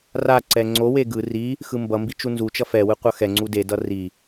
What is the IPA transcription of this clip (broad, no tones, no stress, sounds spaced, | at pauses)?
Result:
r a ǀ ɛ ŋ͡ǀ o w e ɡ ɯ r i | x ɯ m b ʌ m b i t͡ʃ u n z u t͡ʃ ʌ f ɛ w ɯ qʷ ʌ x ɛ ŋ͡ǀ u d e d ʌ r i